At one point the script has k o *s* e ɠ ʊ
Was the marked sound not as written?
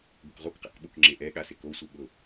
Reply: yes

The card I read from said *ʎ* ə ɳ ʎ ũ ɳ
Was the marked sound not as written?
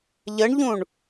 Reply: no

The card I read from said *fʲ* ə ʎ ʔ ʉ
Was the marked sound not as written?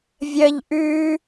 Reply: yes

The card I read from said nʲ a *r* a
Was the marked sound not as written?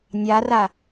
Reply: no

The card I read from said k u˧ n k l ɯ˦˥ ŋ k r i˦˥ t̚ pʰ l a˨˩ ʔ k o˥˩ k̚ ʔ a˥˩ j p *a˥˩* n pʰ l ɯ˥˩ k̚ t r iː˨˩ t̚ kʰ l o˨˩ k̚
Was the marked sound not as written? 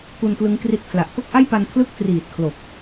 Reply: yes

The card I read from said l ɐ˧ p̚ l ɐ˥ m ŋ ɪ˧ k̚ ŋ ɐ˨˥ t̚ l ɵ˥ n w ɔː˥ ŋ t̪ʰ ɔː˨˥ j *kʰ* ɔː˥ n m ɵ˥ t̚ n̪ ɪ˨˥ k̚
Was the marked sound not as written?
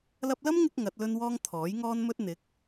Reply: yes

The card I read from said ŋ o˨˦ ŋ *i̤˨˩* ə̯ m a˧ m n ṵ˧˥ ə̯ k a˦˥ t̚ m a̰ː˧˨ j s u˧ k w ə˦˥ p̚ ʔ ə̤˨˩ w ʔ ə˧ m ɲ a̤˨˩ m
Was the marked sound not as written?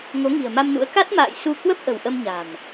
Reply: no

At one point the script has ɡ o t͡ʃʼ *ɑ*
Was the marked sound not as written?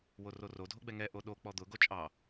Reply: no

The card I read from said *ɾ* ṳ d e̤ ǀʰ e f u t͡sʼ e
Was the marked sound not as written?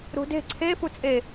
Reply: no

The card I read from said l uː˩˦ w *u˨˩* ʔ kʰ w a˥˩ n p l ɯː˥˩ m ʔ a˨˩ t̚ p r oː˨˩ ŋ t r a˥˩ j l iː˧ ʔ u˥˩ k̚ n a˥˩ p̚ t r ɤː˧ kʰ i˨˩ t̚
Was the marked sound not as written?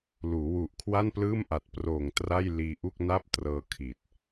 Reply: no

